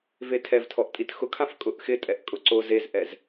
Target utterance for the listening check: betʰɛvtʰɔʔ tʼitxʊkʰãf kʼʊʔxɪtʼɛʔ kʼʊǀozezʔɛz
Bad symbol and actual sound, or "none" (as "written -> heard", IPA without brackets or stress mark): b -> v